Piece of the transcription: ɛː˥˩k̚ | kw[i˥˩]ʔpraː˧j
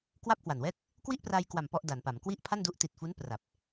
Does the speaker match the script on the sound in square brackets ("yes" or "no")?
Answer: yes